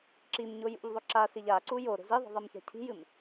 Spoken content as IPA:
ǁ i m ɲ o j ṵ ʎ ðˤ o ǁ a s i ʎ a ǀ u j o ɾ o̤ z i ðˤ i̤ ðˤ i m ç a̤ cʰ i̤ j ɨ m

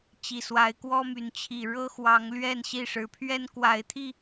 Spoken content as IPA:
t͡ɕ i˨˩ s w a˨˦ ɪ̯ k w ɔ˦ m y˨˦ n t͡ɕʰ i˨˩ ɻ ɤ˦ x w ɑ˨˦ ŋ l ɥ ɛ˥˨ n ɕ i˥˨ ʂ ɻ̩˨˦ pʰ ɥ ɛ˦ n k w a˨˦ ɪ̯ t̪ʰ i˥˨

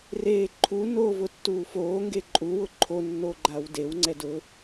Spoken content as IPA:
r eː ǃʰ u n oː v ʊ tː uː f oː ŋ ɡ e ǃʼ u w ʊ ǃʰ o nː o ɡ͡ǃ a w d e w ŋ͡ǀ ɛ d ʊ

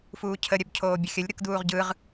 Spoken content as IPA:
f uː cʰ ə ɾʲ œ b cʰ oː bʲ ə xʲ ə lʲ ɾ ɯ k d uː ʁ ɟ ɯ ʁ

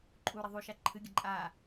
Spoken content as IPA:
ǃʼ u ɾ ɐ ðˤ u ʃ a ǃʰ ɨ ɡʲ ɐ ǃʼ a

